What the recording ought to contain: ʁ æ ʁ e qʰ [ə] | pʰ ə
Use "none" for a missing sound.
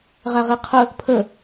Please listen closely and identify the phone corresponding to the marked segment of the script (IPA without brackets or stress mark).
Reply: ə